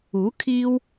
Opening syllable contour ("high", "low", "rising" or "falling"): rising